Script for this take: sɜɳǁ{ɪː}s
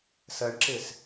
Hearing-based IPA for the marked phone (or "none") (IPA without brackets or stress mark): ɪː